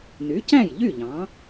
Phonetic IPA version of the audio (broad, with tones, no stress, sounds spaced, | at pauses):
n y˩˥ c æ̃˥˩ j ʎ y˥˩ ʎ ɑ̃˩˥